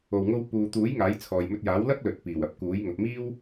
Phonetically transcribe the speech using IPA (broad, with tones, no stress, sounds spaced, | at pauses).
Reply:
o˨ w ŋ o˧ w p uː˨ t̪ uː˨˥ j ŋ aː˨˥ j t͡sʰ ɔː˨ j m ɵ˧ t̚ j aː˨˥ w l ɐ˥ k̚ l ɵ˨ t̚ p iː˨˩ w ɐ˧ p̚ k uː˨˥ j ŋ ɐ˨ p̚ m iː˥ w